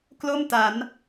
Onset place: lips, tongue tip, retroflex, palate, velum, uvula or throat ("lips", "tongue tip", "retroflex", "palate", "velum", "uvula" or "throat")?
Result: velum